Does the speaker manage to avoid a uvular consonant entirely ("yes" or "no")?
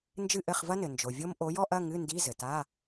no